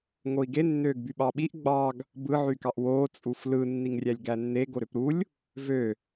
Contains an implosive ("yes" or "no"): yes